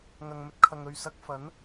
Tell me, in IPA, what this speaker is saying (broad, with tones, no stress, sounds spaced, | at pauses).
ŋ ɐ˨ ŋ m ɵ˧ t̚ kʰ ɐ˨ ŋ ɵ˨ ɥ s ɐ˧ k̚ f ɐ˨˥ n